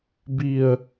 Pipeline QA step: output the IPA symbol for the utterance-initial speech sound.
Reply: b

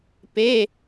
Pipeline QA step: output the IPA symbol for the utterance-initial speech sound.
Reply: p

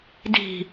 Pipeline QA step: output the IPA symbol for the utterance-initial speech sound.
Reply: d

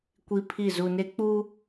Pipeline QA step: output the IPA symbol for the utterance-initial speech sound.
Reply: kʷ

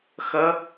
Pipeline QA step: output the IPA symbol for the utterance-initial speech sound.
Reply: x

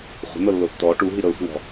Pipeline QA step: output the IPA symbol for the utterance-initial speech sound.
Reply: χʷ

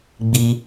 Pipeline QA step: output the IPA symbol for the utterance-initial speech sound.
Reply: ɡ͡b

